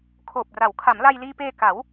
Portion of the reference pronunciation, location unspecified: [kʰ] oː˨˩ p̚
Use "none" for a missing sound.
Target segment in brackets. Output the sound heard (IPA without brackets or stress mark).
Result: kʰ